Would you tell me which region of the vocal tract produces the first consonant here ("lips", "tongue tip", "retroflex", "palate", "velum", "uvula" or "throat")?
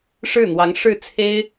retroflex